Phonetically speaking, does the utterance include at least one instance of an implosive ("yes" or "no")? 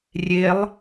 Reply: no